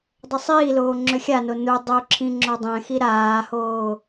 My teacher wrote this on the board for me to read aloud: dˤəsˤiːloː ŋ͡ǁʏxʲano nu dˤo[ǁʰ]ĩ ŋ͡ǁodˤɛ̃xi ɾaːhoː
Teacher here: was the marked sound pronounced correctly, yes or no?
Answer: yes